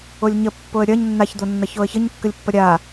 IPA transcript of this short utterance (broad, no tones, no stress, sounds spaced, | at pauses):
o lʲ ɲ ə pː o ə̯ ɾʲ ɐ ɲ nː a ç d̪ o nː ɐ ç o ə̯ ç ə ɲ kː ə lʲ pː ɐ ɾʲ a